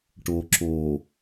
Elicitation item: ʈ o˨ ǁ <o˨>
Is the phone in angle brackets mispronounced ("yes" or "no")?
no